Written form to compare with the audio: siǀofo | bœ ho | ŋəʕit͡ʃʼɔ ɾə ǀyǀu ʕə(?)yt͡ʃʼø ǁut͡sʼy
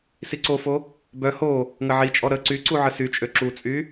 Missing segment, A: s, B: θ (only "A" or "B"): A